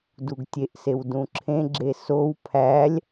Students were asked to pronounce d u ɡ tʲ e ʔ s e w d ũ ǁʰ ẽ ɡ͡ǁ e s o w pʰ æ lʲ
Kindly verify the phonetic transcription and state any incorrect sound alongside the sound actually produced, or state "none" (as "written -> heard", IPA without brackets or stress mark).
none